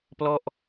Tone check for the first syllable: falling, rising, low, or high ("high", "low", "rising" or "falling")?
falling